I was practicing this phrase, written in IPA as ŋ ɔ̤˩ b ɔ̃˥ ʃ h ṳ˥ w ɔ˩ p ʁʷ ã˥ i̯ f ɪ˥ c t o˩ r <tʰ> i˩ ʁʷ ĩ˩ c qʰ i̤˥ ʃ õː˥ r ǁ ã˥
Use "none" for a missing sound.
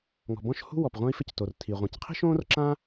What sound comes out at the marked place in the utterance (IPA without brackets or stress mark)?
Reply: tʰ